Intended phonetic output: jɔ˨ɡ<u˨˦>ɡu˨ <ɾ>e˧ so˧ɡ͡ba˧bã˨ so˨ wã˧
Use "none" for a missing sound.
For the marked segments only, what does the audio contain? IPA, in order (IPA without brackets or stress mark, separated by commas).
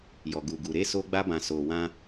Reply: u˨, ɾ